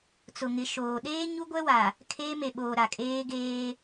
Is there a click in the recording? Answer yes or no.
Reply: no